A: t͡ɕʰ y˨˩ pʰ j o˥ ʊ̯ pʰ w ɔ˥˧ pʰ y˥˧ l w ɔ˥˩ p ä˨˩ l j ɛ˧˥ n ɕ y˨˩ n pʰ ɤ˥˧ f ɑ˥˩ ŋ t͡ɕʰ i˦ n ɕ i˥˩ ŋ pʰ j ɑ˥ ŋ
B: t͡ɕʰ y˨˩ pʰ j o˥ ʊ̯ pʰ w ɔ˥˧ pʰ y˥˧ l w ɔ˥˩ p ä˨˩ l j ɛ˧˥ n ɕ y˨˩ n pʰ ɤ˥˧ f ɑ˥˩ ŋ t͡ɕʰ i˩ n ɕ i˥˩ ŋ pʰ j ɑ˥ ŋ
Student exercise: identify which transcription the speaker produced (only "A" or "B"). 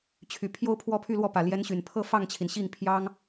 B